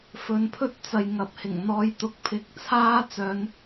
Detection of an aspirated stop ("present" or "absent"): present